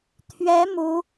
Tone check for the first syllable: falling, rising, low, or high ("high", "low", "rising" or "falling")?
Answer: rising